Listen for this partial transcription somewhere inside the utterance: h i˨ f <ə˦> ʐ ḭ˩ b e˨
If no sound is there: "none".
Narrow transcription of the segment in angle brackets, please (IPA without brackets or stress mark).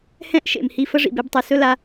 ə˦